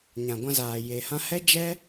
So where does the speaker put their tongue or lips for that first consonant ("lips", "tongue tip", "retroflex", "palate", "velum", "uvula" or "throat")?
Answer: palate